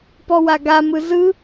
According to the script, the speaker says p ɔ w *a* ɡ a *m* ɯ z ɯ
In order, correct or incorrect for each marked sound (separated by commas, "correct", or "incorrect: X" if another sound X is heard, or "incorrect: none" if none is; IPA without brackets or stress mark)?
correct, correct